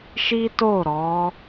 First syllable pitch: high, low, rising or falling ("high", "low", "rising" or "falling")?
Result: high